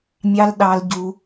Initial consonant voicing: voiced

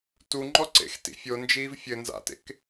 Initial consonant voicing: voiceless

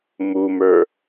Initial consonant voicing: voiced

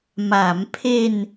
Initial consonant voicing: voiced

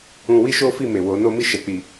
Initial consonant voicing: voiced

